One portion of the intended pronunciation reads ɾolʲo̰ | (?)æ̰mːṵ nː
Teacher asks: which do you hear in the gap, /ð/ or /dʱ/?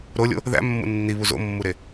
ð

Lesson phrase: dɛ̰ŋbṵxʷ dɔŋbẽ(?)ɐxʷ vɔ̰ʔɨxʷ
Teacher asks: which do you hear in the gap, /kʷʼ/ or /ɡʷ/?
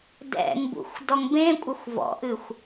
kʷʼ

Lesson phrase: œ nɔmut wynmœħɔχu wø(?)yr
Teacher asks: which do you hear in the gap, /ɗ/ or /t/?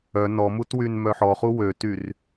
t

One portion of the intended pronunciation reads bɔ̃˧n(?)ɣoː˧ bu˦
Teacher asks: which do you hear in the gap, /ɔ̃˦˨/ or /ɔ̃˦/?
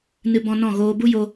ɔ̃˦˨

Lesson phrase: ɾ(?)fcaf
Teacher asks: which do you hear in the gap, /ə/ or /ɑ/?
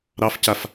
ɑ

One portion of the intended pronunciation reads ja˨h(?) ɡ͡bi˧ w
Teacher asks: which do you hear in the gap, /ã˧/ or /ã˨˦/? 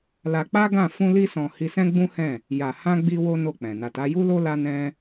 ã˧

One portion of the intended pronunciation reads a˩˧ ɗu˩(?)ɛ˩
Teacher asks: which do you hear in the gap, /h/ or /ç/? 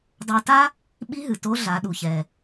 ç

